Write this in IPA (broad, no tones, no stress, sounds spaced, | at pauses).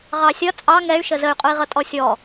ʁ ɑ sʲ ʌ t͡sʼ ɑ ŋ ɛ y̯ ʃ ə z ə y̯ qʼ u i̯ ʁ ʌ tʼ ɔ sʲ ɔ